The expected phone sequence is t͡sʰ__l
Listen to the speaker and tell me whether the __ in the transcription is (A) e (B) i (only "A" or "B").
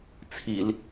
B